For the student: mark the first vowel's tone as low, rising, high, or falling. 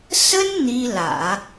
high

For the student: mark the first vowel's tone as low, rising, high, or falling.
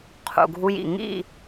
low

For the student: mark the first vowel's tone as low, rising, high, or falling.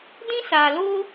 high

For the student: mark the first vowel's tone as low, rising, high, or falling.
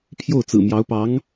falling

